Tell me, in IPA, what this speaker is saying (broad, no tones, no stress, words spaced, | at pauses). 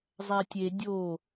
zˤætʲe dʲo